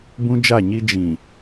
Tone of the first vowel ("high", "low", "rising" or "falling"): high